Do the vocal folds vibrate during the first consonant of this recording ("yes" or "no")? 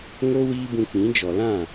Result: yes